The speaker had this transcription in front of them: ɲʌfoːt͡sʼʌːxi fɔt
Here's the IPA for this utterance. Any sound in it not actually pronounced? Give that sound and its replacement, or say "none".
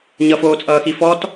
none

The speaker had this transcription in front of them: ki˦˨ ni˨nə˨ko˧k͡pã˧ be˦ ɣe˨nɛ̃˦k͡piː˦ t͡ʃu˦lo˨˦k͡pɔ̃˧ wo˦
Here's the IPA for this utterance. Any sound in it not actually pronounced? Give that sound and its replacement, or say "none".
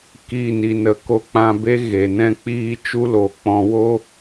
none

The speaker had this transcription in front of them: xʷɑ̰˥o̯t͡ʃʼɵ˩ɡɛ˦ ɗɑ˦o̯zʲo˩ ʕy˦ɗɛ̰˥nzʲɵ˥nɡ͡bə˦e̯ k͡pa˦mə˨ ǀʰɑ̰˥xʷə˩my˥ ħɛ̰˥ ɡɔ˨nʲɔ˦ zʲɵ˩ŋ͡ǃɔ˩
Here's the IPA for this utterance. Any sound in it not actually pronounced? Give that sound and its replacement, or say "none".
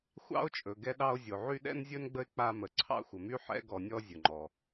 none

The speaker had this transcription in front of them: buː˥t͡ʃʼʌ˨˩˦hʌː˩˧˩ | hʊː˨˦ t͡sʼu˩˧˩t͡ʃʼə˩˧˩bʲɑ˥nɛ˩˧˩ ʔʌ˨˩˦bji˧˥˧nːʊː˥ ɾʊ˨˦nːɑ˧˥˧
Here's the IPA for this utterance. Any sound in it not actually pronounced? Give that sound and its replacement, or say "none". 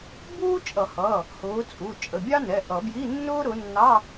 none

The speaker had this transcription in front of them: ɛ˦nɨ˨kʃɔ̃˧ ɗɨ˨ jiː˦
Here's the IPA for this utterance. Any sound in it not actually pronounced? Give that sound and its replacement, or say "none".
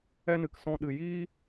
ʃ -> s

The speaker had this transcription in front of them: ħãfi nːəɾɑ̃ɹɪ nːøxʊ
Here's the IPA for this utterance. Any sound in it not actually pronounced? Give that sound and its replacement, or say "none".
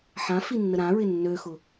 ɑ̃ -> ã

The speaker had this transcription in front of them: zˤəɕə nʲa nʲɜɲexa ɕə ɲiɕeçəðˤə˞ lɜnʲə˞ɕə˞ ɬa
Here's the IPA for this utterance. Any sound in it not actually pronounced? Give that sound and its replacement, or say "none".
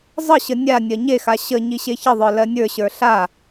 none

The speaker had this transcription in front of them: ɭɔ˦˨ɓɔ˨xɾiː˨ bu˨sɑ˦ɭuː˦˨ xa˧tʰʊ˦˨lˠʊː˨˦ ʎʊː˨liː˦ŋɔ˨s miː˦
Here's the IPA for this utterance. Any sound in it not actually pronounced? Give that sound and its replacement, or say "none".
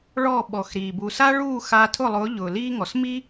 ɑ˦ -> a˦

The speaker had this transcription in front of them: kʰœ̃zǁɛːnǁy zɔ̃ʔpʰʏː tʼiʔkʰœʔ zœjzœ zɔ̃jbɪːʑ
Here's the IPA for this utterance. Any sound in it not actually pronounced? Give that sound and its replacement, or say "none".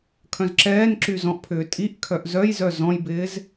ʑ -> z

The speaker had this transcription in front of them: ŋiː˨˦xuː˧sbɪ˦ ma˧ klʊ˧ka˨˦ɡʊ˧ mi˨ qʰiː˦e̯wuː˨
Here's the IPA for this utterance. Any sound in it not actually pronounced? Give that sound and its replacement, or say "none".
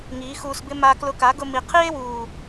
none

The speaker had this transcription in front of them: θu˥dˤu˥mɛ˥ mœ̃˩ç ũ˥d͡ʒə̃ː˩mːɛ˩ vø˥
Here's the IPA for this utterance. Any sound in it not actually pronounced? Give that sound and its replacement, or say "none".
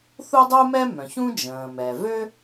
mː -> m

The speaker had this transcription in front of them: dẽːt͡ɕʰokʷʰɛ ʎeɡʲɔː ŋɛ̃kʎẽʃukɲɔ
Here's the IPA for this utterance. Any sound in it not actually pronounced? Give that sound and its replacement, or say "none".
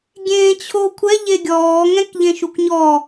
d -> ɡʲ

